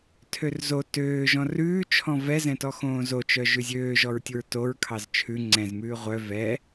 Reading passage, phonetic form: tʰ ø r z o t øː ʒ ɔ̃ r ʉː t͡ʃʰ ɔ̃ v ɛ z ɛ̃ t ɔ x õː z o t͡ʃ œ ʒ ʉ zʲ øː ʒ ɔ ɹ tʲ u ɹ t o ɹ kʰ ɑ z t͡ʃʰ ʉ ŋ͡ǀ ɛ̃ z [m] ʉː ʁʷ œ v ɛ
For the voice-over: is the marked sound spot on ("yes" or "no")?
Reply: yes